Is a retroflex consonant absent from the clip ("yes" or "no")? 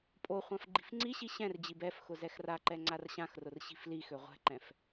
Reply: yes